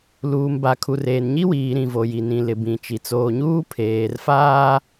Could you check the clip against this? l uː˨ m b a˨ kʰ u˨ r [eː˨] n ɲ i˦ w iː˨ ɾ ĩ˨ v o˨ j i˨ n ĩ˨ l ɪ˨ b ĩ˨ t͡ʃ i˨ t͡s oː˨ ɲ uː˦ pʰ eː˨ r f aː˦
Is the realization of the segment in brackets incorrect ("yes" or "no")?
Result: no